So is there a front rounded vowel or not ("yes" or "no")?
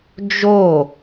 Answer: no